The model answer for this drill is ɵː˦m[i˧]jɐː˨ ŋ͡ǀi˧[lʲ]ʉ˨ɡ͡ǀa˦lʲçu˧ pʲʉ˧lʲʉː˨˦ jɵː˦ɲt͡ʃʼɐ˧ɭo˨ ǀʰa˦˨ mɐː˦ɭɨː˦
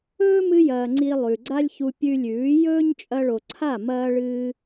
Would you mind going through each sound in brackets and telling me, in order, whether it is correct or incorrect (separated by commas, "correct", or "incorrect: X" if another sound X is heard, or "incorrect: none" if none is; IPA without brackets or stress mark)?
incorrect: ɨ˧, incorrect: lˠ